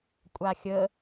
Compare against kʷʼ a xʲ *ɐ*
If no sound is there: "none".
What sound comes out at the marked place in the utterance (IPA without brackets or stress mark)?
ə